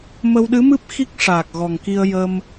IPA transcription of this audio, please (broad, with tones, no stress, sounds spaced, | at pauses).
m ə˧ w ɗ ɨ˧˥ m ɨ˦˥ p̚ x i˦˥ k̚ ʂ aː˨˩ k̚ ɣ ɔ˨˩ ŋ k i˧ ə̯ j ə˧ m